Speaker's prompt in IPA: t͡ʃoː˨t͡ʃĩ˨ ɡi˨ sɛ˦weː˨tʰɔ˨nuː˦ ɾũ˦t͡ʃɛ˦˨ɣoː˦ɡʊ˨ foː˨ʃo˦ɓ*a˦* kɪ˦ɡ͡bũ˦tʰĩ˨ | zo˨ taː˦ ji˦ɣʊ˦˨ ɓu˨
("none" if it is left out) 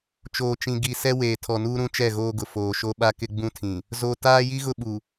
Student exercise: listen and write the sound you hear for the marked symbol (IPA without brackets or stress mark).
a˦